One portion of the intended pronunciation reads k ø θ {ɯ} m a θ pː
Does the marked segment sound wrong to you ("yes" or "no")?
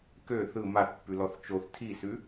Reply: no